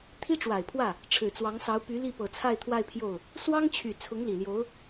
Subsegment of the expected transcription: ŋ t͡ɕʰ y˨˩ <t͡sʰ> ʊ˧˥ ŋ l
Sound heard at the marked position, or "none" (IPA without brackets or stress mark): t͡sʰ